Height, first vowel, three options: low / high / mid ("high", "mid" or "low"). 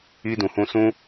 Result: high